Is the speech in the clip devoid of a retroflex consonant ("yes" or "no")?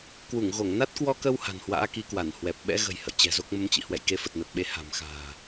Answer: yes